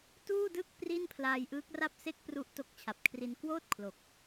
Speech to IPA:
tuː˥˩dɯ˥˩k̚ pri˥˩npʰlaː˧jʔɯː˦˥k̚ra˥˩p̚ se˥˩k̚pru˦˥ʔ to˦˥k̚t͡ɕʰa˨˩p̚ kʰri˧n kwoː˥˩t̚ kʰlo˨˩k̚

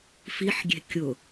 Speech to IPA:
fiħɡʲe̤ kʲʊ

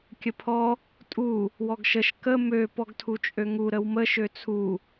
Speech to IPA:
kʲəpʰɔ | tʼu | wɔɡʃəʃ kə mø pɔɡtʰut͡ʃʼøŋu ɾəwmə ʃøt͡sʰu

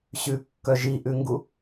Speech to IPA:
ɕʉkːœ ʒiʔʉŋɡu

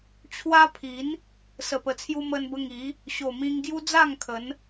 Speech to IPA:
t͡ɕʰwa˦ pʰi˨˦n | sə˨˩pə˨˩t͡sʰju˧ mə˧nbə˧ŋi˨˦ | ɕo˨˩mĩ˧ŋ ɡju˦d͡za˥˧ŋ kʰə˨˦n

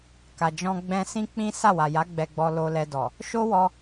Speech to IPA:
ka˨d͡ʒɔ̃˧ ɡ͡bɛ̃˧sĩ˦k͡pĩ˦ sa˦˨wa˨ja˨˦ ɡ͡bɛ˧ɡ͡bɔ˧ lo˧lɛ˧dɔ˨ | ʃo˦wɔ˧

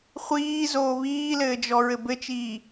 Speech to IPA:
χʷiːzoː βiːlɘːd͡ʒɔɹɘ bɘt͡ʃiː

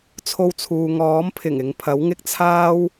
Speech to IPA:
t͡sʰo˧wt͡sʰuː˨ŋɔː˨˥mpʰɪ˨˩ŋ ɪ˨ŋpʰɐ˨˥wŋɪ˥k̚t͡sʰaː˥w

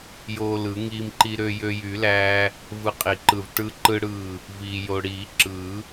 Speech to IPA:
joː˧lɯ˨˩˦ŋiː˧mǃi˧ ɾø˧jø˧jy˨˩˦læː˧ | vɯ˧qʼi˨˩˦ǃɯ˧˩v ʈɯ˧ǃɯ˧ɽɯː˧˩ | viː˧jo˧ ɽiː˨˩˦ǁɯ˨˩˦

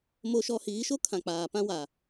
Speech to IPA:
mo˦ʃɔ˦ hiː˨˦ʃo˦kʰã˨ k͡paː˨ pã˦wa˨

